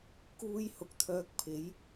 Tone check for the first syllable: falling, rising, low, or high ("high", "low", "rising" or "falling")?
high